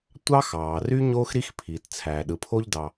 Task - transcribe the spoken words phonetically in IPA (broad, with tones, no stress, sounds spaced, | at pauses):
tʷ ɑ˥ x ɑː˩ r y˥ ɲ oː˥ x ɾ i˥ x pʰ iː˩ t t͡sʰ æː˩ ɗ ɯ˩ pʰ o˥ ʎ d ɑ˩